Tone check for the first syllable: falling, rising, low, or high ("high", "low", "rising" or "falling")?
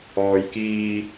low